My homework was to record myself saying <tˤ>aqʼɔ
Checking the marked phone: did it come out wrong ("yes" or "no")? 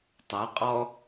no